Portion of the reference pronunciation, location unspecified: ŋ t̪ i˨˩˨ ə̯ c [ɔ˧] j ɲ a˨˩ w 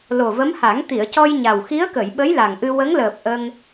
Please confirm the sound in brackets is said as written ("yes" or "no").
yes